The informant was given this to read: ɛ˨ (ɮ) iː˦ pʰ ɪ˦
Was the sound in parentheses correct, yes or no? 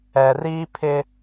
no